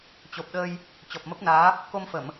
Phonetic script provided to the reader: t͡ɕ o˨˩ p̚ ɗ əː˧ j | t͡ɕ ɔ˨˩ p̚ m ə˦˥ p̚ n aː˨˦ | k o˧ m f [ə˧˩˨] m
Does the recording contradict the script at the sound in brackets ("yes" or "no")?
no